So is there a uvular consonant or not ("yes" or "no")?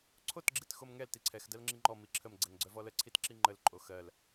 no